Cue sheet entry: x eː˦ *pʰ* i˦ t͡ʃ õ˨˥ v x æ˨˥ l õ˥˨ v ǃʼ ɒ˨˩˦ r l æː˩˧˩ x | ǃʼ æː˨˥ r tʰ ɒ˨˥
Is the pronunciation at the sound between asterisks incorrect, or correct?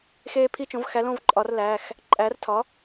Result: correct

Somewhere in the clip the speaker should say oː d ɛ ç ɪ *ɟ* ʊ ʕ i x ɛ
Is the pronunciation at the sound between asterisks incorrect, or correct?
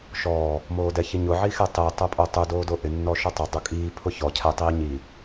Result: incorrect: ɲ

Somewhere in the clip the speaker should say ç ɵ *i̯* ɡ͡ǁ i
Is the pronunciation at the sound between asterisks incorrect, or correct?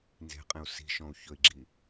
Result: correct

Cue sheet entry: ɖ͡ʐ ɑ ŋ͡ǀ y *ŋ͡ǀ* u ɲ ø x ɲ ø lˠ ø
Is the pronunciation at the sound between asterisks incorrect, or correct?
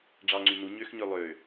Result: incorrect: n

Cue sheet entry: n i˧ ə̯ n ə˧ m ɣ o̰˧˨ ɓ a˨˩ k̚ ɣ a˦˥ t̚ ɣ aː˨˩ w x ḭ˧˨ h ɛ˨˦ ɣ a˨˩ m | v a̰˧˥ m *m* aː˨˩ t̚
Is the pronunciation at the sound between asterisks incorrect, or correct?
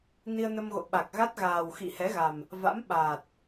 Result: incorrect: ɓ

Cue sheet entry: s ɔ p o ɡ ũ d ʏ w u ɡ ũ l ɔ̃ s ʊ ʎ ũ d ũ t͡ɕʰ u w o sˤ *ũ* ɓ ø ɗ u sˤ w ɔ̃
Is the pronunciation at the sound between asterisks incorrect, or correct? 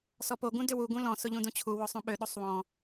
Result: correct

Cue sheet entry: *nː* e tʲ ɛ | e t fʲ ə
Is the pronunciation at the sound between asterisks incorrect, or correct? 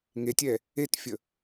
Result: incorrect: ŋ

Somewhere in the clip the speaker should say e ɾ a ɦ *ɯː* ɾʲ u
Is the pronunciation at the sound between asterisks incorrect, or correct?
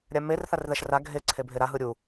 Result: incorrect: ɯ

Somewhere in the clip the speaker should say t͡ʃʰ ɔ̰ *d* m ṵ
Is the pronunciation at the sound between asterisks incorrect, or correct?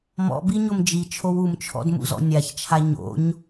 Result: correct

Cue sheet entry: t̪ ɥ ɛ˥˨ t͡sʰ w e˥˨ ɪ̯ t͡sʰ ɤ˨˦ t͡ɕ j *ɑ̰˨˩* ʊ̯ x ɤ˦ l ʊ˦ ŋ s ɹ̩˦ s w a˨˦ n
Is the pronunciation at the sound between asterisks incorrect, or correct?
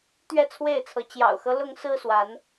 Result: correct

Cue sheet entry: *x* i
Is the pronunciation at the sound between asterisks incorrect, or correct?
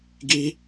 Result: incorrect: ɡ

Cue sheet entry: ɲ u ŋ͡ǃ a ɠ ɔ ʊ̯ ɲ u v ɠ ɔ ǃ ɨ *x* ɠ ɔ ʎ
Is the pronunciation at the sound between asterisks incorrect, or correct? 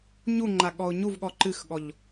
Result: correct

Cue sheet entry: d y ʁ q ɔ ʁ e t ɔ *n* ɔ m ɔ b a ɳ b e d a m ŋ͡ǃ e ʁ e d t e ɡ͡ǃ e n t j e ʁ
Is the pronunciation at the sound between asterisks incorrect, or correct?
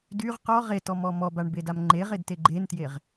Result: incorrect: m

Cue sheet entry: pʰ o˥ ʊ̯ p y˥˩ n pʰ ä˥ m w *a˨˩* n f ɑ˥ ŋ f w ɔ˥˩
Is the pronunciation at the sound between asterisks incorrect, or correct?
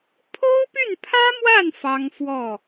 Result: incorrect: a˥˩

